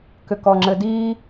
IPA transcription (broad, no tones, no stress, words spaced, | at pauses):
kʏkɔŋ͡ǁɘdiː